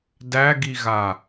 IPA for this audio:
d æ ɡ i ɣ a

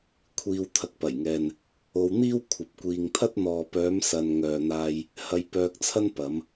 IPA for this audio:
kʷʰ iː˧ w t̪ʰ ɐ˨˥ k̚ p ɐ˨˩ j ŋ ɛː˨ n | o˧ w n̪ iː˥ w kʷʰ ɐ˨ p̚ kʷ iː˨ ŋ t̪ʰ ɐ˥ t̚ n̪ ɔː˨ p œː˨˧ m s ɐ˨ n ŋ œː˨ n̪ aː˧ j | h ɐ˧ j p œː˧ k̚ t͡sʰ ɐ˥ n p ɐ˨˧ m

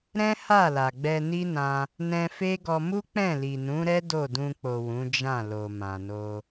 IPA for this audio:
ɾ ɛ̃˦ h a˦˨ l a˨ ɡ͡b ɛ˧ n i˦ n ã˧ | n ɛ̃˧ f e˦ ɡ ɔ˧ m u˦ k͡p ɛ̃˦˨ l i˨ n ũ˨˦ ɾ ɛ˦ d o˦˨ d ũ˧ k͡p o˨ w ũ˨˦ d͡ʒ ã˦˨ l o˨ m ã˨ n o˧

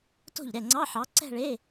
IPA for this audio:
t o̤˥˩ ʎ ɾ ɛ˥˩ ŋ͡ǀ ɑ˧˥˧ ħ ɑ˨˥ ǀ ɛ̤˥˧ ɭ e˧˥˧

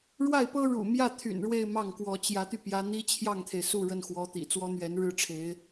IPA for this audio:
ɻ w a˥˩ ɪ̯ p ɤ˥ ɻ ṵ˨˩ m j ä˥˩ t̪ʰ y̰˨˩ n ɻ w e˥˧ ɪ̯ m ɑ˥˩ ŋ k w ɔ˧˥ t͡ɕ j ä˧˥ t̪ y˧ p j ä˧˥ n̪ i˥ t͡ɕʰ j ɑ˥˩ ŋ t̪ʰ e˩ ɪ̯ s u˥˧ ɻ ə˥˩ n x w ɔ˧˥ t̪ ḭ˨˩ t͡s w ɔ˥ n̪ ɥ ɛ˧˥ n ɻ ɻ̩˥ ʈ͡ʂʰ e˧˥ ɪ̯

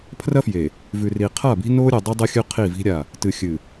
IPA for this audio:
pʰ r ɐ˦ f j e˨ | v ʉ˨ r i˨ qʰ a˦˨ b i̤˦ n o˦ ɾʲ ɨ˨ dˤ i˦ dˤ ɨ˦ xʲ ʉ˦ qʰ i˦˨ v i̤˦ ɾʲ a˦˨ | t ɨ˨ xʲ ɨ˨

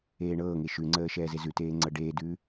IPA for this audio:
eː ɳ ɤː ŋ e ʃ ʉ ŋ͡ǀ əː ʃ ɛː z e z ʉ t eː ŋ͡ǀ ɤ ɖ eː d ʉː

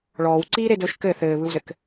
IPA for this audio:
ɭ ɔː w ǀ iː ɾ e d ɵː ʃ k ɘ θ ɘː β ɯ w z ɘ k

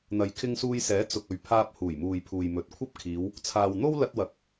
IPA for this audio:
n̪ ɐ˨ j kʰ ɪ˧ ŋ s uː˧ j s ɛː˨˥ t͡s ʊ˨ k̚ ɵ˨ ɥ pʰ aː˧ p̚ h uː˨˩ j m uː˨ j pʰ uː˨ j m ɵ˨˥ t̚ kʷʰ ɐ˥ p̚ kʰ iː˨˧ w | t͡sʰ aː˨ w n̪ o˥ w l ɐ˧ t̚ w ɐ˨˥ k̚

